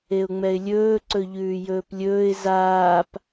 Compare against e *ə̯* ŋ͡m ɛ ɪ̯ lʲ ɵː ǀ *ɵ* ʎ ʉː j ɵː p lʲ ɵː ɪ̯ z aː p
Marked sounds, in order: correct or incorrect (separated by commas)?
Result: incorrect, correct